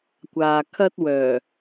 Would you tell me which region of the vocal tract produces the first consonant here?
velum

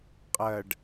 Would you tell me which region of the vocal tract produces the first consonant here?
uvula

